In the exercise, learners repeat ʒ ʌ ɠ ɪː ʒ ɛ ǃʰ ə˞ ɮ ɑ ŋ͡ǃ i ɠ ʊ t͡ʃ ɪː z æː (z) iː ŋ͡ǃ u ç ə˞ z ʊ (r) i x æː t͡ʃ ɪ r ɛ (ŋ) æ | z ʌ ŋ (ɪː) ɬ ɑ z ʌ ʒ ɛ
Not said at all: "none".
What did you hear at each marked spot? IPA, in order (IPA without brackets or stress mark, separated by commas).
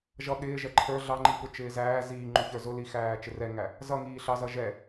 z, l, ŋ, iː